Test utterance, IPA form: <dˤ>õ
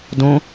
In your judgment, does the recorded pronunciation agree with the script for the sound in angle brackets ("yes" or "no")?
no